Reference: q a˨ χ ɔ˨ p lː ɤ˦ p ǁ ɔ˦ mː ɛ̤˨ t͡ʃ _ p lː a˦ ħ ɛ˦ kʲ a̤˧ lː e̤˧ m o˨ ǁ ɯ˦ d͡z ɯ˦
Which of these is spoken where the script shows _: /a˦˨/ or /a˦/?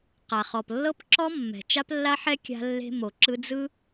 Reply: a˦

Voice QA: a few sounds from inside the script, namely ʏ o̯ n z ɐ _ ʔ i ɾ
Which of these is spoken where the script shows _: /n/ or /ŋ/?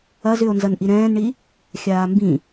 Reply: n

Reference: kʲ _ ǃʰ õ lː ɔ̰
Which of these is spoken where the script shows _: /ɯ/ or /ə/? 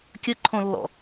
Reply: ə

